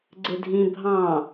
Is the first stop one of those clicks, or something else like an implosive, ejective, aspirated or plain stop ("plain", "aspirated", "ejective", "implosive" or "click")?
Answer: click